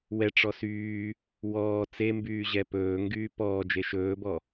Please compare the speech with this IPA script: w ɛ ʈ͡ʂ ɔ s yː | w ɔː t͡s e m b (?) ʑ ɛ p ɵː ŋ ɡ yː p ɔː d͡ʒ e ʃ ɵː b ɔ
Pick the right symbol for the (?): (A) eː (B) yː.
B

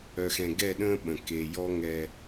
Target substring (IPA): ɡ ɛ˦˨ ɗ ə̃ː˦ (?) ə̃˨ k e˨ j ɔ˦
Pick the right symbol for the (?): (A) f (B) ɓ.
B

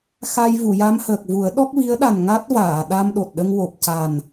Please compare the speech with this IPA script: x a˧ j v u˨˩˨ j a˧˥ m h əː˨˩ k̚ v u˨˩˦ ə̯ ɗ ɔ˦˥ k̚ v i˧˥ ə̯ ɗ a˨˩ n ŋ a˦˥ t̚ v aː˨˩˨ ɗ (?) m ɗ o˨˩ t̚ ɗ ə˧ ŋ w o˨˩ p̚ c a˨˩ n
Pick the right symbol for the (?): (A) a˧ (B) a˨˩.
A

